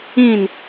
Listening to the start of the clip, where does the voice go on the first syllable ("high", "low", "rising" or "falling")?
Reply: falling